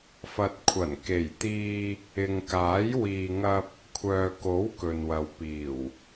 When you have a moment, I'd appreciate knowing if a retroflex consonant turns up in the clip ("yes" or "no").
no